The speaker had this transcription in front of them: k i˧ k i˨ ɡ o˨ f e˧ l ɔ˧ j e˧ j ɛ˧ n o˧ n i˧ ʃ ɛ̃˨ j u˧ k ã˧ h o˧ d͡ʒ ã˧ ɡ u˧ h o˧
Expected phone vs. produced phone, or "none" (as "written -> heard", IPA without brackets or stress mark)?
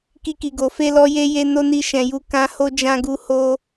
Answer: ɛ˧ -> e˧